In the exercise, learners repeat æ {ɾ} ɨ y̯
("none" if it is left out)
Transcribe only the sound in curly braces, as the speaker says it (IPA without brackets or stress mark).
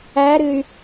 ɾ